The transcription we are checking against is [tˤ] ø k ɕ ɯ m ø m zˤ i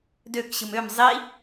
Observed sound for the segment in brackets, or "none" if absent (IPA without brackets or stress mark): d